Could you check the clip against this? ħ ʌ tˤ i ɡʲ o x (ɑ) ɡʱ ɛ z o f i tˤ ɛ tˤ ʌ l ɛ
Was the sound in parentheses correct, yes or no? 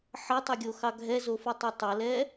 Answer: yes